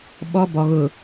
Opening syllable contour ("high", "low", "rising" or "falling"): high